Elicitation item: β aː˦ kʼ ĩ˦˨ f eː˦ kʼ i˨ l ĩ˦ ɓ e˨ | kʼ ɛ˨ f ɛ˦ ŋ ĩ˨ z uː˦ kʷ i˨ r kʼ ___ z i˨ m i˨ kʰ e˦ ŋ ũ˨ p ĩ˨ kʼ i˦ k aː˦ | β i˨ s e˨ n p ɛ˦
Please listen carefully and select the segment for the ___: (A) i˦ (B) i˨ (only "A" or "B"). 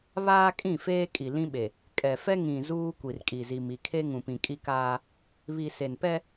B